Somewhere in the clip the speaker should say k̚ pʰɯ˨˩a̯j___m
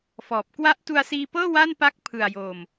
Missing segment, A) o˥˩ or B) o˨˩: B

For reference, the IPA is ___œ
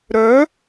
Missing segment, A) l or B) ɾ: B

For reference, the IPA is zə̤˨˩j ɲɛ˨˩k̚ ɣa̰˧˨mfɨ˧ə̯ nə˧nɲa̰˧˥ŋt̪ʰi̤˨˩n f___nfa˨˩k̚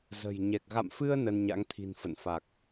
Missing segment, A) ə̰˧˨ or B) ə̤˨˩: A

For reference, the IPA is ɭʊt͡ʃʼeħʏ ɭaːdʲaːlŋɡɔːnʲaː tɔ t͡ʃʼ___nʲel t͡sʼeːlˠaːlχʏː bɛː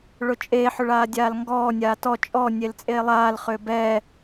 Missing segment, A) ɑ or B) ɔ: B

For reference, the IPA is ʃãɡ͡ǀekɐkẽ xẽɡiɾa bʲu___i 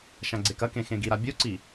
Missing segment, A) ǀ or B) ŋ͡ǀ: A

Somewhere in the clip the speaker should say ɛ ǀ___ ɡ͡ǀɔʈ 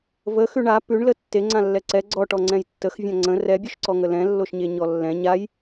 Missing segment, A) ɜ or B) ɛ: B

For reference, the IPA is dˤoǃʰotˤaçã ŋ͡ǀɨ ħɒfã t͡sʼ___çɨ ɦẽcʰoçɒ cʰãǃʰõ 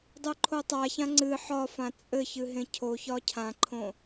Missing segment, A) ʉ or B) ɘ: B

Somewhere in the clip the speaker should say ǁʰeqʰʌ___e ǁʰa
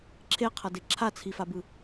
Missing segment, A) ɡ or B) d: B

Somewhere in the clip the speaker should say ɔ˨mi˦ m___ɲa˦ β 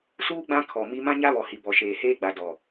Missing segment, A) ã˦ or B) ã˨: A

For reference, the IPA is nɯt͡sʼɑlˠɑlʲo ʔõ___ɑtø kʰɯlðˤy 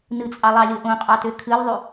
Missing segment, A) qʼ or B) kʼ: A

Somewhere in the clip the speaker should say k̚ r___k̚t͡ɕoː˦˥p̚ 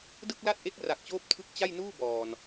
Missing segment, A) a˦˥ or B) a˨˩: B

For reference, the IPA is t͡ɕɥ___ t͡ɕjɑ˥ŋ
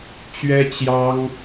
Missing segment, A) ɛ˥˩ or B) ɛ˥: B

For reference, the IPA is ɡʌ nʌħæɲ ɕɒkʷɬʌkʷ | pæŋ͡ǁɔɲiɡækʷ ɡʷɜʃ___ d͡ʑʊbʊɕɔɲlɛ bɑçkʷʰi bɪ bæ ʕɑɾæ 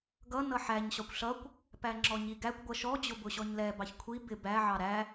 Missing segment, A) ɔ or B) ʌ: A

